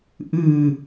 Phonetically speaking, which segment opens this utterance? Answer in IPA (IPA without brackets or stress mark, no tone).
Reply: ʔ